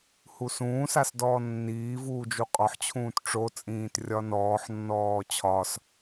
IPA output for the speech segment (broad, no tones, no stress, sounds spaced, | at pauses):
h u s ũː s a s d ɔː nː iː v uː d͡ʒ u qʼ ɒ ħ t͡ɕʰ ũː t ʈ͡ʂ o t͡sʼ ĩː t rʲ ɒ n ɔː ħ nː ɔː t͡ɕʰ ɒ s